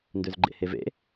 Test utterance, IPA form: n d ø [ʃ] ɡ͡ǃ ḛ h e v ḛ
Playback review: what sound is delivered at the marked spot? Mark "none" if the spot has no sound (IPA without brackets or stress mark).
z